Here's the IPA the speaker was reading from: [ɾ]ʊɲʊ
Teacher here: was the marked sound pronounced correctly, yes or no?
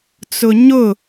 no